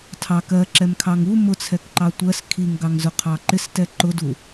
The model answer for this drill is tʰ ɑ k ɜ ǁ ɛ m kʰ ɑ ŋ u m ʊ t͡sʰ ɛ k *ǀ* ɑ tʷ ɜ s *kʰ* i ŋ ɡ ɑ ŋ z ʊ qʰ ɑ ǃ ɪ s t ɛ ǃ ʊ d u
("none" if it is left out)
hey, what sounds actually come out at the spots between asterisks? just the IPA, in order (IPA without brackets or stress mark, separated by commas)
ǃ, kʰ